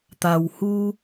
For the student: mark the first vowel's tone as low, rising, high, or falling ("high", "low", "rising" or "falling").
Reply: low